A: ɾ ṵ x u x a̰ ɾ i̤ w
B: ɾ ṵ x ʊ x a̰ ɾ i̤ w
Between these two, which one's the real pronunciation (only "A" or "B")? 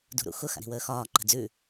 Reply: B